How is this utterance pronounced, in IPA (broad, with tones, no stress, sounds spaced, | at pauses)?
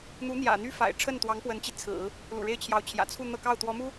n̪ u˧˥ n̪ j ä̰˨˩ n̪ y˥ f a̰˨˩ ɪ̯ ʈ͡ʂʰ ə˥˩ n t̪ w ɑ˧˥ ŋ p w ə˧˥ n t͡ɕ i˧ t͡sʰ ɹ̩˨˩˦ | l ṵ˨˩ ɻ e˥˩ ɪ̯ t͡ɕʰ j ɑ˧˥ ʊ̯ t͡ɕʰ j ä̰˨˩ t͡sʰ u˥˧ n̪ ɤ˥˧ k ɑ˥˩ ʊ̯ t̪ w ɔ˧˥ m u˥